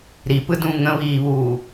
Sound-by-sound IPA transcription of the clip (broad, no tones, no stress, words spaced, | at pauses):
ɾipɯdũ ŋə̃βiːβuː